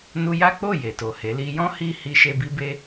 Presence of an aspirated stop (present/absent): absent